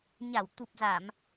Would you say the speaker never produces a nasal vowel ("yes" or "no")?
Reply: yes